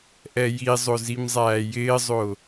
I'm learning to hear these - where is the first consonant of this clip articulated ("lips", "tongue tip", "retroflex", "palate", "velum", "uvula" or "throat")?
throat